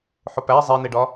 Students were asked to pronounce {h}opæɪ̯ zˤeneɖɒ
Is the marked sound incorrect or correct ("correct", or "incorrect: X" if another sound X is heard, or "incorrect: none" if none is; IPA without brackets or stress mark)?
incorrect: ħ